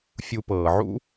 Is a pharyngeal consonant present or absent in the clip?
present